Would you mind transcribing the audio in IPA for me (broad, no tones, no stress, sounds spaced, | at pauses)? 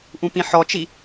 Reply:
ʔ ũ p ĩ ħ ɔ t͡ʃ i